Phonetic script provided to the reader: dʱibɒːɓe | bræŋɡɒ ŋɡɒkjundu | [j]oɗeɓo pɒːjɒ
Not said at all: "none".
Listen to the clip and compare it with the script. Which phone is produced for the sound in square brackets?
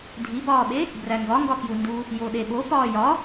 j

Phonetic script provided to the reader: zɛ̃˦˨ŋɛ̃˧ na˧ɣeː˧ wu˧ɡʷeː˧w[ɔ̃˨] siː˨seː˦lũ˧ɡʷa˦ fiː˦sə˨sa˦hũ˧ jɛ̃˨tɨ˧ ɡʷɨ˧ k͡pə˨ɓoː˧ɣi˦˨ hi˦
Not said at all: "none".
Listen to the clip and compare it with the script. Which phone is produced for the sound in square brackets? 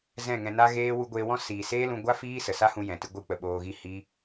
ɔ̃˦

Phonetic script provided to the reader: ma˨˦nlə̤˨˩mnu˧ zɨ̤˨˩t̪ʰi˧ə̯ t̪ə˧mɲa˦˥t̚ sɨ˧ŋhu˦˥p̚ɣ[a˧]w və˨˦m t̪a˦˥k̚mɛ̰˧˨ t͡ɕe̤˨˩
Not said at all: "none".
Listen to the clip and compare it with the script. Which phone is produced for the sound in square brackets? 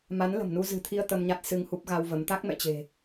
a˧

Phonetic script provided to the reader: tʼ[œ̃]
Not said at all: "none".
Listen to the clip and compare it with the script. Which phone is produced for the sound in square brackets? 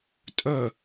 œ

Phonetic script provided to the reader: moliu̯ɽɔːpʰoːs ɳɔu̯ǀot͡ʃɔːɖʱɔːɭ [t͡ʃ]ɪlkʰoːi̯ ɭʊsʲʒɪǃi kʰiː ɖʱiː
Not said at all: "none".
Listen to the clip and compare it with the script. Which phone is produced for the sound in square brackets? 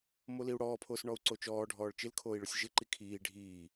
t͡ʃ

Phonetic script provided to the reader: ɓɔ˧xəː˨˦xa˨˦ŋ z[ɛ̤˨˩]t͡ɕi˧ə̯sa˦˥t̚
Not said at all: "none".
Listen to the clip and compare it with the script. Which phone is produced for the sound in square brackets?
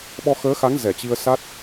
ɛ˧˩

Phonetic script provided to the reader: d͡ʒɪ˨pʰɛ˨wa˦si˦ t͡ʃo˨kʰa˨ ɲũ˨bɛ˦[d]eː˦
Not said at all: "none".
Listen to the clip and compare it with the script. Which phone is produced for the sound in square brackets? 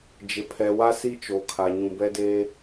d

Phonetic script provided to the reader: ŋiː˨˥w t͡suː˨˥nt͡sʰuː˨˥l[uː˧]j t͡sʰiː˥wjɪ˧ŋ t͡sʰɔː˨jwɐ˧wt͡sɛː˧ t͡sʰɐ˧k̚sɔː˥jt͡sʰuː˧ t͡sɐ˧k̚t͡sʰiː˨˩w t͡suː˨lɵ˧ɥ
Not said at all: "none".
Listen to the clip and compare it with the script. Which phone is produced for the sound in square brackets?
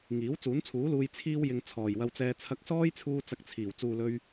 uː˧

